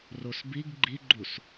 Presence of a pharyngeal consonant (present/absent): absent